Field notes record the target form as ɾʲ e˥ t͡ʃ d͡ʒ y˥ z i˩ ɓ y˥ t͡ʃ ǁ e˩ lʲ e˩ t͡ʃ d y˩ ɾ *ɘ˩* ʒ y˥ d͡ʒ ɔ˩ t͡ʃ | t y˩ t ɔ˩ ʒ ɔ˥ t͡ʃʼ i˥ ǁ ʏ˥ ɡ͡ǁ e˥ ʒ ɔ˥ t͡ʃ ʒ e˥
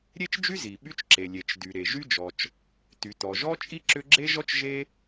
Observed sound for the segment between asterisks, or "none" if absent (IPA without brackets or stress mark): e˩